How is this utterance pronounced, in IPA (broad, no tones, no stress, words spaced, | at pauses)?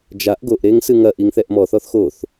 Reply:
d͡ʒaʔ ɡoʔɾeŋ sɨŋɐʔiŋ θɛʔmɔθɔθ xoθ